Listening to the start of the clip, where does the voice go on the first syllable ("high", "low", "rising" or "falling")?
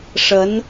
rising